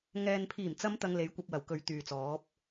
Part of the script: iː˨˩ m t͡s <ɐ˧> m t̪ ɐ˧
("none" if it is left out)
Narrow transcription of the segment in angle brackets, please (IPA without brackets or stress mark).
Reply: ɐ˨˧